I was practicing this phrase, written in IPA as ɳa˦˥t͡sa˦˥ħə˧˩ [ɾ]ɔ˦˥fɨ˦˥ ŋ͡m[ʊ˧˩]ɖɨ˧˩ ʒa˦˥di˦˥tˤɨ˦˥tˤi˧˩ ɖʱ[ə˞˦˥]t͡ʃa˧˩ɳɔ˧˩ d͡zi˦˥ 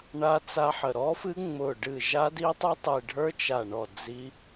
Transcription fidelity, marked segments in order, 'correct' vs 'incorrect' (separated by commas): correct, correct, correct